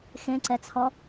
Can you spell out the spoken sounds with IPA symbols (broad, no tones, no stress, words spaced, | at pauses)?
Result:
xẽǀɛt͡sʰɔ